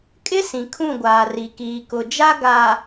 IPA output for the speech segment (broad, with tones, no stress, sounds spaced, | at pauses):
kʼ ɪ˦ s ĩ˨ kʰ ũ˦˨ ɡʷ aː˨ r i˨ k iː˨ k ʊ˨ d͡ʒ a˦ ɡ aː˨